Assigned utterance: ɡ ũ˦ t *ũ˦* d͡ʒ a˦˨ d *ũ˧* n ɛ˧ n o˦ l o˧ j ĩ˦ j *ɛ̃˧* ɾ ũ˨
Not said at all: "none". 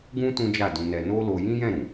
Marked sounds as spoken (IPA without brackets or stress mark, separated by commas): ũ˦, ũ˧, ɛ̃˦˨